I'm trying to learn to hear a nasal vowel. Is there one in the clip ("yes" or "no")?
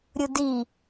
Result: no